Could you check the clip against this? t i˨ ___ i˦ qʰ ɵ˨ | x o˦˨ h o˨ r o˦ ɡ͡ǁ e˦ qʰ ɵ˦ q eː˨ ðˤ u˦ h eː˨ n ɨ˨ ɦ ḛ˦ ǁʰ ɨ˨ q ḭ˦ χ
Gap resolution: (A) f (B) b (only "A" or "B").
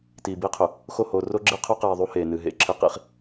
B